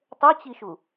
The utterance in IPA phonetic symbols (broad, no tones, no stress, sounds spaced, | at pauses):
tˤ o t͡ɕ i ʃ u